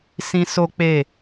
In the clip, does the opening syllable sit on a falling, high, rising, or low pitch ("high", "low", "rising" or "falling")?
high